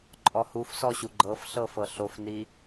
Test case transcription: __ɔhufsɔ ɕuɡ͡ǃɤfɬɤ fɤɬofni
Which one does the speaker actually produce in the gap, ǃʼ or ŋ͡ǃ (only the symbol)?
ǃʼ